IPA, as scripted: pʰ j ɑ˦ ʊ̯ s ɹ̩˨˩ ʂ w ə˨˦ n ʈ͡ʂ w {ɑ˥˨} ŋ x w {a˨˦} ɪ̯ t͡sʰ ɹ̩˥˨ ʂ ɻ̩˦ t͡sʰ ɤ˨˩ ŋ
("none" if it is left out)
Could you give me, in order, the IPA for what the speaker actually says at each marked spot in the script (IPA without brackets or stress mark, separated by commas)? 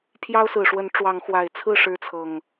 ɑ˨˦, a˨˩